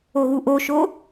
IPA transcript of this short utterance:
o ɣ u ʔ o ʃ o

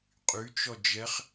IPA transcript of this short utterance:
qʼ y t͡ʃ ɔ d͡ʒ ɛ χ

